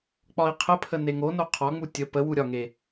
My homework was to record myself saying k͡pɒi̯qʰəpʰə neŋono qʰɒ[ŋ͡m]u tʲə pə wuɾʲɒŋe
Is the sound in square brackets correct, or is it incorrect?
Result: correct